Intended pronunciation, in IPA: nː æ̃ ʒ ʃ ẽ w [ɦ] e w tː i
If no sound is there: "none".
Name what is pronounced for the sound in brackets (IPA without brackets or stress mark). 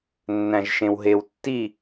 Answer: ɦ